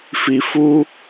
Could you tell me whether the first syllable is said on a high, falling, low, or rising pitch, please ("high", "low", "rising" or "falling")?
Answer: low